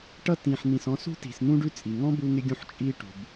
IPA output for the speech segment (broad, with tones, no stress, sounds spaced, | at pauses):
ʈ ʌ˦ t ĩ˨ ħ n̪ ĩ˨ s ɔ̃˦ s ṳ˥ t i̤˨ s n̪ ũ˥ ɖ ʉ˦ t͡sʼ i˩ ŋ ɔ̃˥ b u˦ ŋ ɪ˦ ɡʲ ũ˦ ħ t͡ʃʼ i˦ ʈ ṳ˩ b